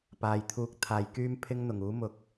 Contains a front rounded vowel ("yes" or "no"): yes